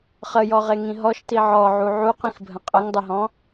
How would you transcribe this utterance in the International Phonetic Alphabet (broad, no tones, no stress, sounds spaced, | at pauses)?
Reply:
χ ə j ɔ ʁ e ŋ ĩ ɦ ɔ ʃ t i ʕ ɔ ʕ u ʕ u q ĩ x bʱ ə̃ qʼ ə ŋ dˤ ɘ ɦ ɔ̃